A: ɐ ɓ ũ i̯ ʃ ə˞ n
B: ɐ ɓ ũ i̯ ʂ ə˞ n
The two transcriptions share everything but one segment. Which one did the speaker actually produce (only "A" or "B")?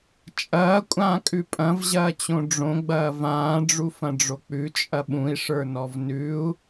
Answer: B